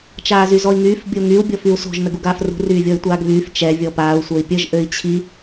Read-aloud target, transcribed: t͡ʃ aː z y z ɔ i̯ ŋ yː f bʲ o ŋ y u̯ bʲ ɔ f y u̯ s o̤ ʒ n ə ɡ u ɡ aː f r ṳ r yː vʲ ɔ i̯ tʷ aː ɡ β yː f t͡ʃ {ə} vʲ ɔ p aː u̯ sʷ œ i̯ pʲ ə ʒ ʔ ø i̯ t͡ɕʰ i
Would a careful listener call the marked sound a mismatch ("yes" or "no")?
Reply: yes